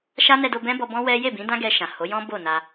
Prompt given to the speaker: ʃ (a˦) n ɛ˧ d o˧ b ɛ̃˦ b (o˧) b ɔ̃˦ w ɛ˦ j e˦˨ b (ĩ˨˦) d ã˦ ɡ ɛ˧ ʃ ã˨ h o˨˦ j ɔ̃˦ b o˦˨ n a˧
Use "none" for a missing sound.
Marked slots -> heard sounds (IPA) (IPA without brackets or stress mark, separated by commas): a˦, ɔ˧, ĩ˨˦